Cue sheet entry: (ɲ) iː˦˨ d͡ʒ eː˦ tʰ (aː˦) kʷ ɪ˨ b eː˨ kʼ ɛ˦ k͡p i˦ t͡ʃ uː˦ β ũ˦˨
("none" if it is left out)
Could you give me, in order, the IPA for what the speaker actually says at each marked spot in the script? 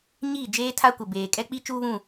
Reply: ɲ, a˦

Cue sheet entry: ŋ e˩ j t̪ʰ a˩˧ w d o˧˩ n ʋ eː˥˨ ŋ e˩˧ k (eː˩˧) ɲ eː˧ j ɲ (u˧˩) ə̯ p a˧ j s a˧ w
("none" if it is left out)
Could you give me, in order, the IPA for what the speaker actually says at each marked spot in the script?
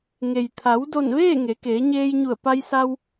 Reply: eː˩˧, u˧˩

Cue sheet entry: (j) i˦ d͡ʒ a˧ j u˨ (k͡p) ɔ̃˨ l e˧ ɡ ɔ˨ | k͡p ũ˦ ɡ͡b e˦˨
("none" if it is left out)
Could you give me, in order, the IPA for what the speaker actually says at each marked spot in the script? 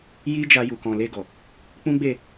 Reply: j, k

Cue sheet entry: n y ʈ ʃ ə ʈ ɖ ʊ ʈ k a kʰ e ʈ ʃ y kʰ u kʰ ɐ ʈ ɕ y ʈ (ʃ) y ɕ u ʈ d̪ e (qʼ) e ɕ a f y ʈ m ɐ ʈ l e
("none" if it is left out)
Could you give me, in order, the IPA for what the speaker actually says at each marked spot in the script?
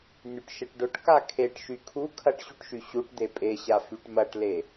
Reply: ʃ, pʼ

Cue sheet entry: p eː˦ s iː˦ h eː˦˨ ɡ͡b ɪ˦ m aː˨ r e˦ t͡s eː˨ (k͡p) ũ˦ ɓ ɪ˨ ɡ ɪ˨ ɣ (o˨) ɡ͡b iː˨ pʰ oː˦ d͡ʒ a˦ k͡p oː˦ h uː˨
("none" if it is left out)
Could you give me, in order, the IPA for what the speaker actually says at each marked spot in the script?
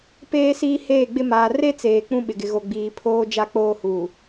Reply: k͡p, o˨

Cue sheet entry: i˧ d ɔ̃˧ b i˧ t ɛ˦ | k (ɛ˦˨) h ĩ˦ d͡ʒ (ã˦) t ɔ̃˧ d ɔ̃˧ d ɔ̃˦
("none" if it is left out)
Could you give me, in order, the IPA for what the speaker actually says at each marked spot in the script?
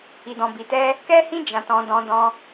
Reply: ɛ˦, ã˧

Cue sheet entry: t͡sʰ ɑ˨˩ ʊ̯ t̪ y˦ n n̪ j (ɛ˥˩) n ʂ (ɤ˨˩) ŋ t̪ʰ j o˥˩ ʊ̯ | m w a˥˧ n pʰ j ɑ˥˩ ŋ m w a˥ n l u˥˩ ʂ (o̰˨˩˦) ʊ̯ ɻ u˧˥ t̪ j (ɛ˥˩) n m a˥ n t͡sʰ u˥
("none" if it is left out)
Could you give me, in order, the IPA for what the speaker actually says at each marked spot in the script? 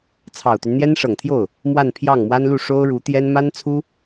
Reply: ɛ˥, ɤ˨˩, o˥, ɛ˥

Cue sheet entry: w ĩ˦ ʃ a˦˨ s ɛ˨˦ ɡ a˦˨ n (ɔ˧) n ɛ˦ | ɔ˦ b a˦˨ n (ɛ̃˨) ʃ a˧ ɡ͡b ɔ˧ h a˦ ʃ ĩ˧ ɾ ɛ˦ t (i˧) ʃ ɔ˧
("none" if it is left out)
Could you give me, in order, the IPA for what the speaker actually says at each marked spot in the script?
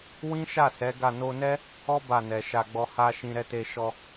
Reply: o˧, ɛ˨, e˧

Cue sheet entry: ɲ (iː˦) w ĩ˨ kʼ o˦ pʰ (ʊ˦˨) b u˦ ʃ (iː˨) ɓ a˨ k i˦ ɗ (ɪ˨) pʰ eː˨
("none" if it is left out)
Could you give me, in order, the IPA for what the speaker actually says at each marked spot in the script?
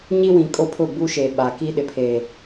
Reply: i˦, ʊ˦˨, eː˨, ɪ˨

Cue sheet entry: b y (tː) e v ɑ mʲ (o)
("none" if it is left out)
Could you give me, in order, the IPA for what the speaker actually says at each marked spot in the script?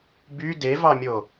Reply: d, o

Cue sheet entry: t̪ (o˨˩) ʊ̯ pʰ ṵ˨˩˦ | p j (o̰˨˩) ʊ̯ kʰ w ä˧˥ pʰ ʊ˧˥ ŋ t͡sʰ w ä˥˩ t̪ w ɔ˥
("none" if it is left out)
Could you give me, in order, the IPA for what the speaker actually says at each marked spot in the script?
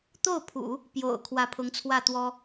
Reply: o˥˩, o̰˨˩

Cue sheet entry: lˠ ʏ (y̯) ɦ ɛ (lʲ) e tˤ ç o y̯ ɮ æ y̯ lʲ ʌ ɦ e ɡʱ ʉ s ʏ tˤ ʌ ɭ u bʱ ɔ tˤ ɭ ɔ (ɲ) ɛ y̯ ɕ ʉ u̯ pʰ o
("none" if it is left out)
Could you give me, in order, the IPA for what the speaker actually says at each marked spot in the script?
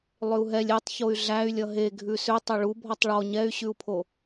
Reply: u̯, lʲ, ɲ

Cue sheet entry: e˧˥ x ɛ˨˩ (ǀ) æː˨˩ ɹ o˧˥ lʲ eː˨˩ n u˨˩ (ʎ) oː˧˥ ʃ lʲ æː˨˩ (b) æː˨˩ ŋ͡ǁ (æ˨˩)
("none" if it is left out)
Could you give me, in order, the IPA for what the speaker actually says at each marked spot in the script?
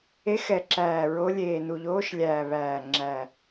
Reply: ǁ, ʎ, β, æ˨˩

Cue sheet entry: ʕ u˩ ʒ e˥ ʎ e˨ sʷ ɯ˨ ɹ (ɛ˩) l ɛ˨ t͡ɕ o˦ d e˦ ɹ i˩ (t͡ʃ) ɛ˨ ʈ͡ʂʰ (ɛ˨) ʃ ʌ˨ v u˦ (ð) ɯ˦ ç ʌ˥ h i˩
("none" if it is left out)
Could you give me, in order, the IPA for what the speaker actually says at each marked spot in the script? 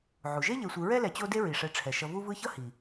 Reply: ɛ˥, ʂ, ɛ˩, v

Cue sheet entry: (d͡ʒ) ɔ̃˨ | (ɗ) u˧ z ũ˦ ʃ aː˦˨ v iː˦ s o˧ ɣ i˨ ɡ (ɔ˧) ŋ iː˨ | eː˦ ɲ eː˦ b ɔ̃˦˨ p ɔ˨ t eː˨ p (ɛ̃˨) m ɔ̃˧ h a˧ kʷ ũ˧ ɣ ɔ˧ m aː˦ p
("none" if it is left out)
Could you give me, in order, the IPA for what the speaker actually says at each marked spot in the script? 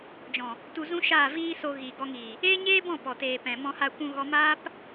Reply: d͡ʒ, t, ɔ˧, ɛ̃˨

